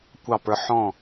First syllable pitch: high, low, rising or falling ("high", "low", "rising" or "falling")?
falling